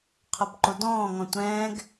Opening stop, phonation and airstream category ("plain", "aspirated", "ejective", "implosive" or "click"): aspirated